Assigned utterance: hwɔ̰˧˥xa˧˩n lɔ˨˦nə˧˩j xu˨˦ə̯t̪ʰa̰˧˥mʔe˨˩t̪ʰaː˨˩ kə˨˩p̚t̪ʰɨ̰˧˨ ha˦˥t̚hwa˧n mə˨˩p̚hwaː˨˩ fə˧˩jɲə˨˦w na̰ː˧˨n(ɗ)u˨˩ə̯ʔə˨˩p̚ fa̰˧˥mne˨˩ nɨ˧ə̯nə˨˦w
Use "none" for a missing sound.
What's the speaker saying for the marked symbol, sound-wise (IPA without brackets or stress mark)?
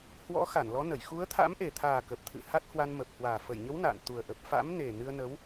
t̪